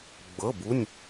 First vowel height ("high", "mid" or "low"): mid